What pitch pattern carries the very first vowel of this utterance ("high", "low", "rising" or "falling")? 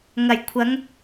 low